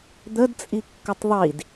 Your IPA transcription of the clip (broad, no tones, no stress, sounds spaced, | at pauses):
d̪ ə d t͡sʼ i kː ʊ tˤ ðˤ i d